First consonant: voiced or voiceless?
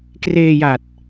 voiceless